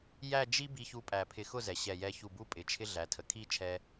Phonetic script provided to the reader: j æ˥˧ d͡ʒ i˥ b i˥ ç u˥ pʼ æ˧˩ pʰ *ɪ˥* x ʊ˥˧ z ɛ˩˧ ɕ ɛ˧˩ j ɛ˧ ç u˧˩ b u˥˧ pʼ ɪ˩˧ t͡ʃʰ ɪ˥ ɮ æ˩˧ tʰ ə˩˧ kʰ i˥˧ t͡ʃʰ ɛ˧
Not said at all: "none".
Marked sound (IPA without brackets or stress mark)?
ɪ˧˩